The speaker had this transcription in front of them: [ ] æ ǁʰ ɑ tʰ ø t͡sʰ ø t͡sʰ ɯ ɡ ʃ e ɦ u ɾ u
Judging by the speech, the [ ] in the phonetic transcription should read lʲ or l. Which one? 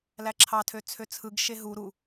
l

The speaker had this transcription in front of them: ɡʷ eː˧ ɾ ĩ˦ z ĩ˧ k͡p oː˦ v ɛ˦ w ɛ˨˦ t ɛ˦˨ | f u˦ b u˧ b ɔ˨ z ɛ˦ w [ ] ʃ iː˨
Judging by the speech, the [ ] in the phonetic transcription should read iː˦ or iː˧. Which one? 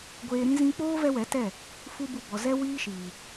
iː˦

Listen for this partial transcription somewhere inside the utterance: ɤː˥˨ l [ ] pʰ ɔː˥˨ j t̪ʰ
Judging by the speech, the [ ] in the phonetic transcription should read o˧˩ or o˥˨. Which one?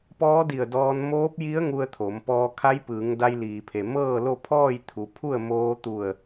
o˥˨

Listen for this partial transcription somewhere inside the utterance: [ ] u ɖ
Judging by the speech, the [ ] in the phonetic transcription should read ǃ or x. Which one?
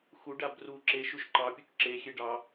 x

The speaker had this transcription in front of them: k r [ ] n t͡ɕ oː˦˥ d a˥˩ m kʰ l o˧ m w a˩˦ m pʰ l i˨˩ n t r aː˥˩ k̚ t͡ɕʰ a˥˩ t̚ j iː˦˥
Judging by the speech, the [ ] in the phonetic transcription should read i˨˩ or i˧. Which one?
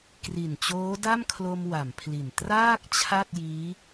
i˨˩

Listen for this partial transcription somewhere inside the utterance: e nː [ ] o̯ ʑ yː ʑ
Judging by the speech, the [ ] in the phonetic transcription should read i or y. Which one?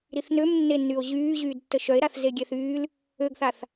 y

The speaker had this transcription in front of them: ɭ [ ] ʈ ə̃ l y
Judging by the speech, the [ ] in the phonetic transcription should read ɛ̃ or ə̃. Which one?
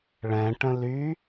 ɛ̃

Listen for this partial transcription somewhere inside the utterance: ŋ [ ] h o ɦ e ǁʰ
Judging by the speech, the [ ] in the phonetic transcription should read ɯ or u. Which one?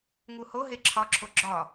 u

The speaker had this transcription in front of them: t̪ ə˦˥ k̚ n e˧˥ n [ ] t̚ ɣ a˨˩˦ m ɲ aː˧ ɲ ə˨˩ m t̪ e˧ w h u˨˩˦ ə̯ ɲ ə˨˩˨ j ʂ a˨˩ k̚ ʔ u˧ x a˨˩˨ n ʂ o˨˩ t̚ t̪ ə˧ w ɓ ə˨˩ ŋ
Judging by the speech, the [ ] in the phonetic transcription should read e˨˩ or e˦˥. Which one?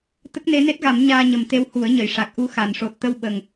e˦˥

